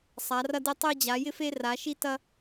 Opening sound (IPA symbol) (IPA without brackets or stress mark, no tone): sˤ